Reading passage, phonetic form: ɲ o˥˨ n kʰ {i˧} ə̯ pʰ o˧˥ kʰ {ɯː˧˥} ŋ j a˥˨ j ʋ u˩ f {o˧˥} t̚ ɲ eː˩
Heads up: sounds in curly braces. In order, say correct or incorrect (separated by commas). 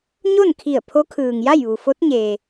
incorrect, incorrect, correct